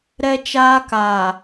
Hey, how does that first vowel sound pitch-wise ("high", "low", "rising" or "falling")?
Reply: high